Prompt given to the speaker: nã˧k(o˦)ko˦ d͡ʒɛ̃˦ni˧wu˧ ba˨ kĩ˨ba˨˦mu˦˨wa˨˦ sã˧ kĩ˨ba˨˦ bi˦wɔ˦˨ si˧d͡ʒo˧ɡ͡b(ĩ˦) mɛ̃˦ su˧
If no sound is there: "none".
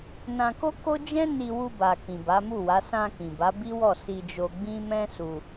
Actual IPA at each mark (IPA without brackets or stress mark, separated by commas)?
o˦, ĩ˦